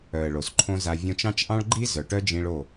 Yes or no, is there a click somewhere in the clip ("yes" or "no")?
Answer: yes